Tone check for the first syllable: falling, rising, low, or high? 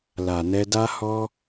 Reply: low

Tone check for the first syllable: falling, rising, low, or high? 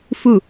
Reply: falling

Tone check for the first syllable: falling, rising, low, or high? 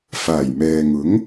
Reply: low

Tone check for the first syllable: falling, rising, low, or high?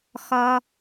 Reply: low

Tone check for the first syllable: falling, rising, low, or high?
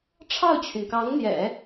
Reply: falling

